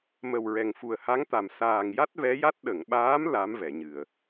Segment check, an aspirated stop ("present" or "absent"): absent